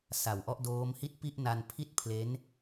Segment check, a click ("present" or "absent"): absent